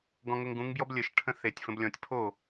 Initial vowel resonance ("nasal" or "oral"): nasal